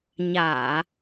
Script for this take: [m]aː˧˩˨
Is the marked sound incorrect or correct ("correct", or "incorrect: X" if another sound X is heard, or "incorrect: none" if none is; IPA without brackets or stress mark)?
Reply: incorrect: ɲ